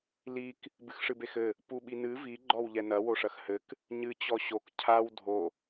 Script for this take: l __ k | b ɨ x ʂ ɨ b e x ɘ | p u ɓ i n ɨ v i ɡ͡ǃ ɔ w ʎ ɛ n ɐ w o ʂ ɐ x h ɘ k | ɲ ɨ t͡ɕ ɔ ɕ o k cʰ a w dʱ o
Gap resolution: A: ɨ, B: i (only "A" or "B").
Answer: B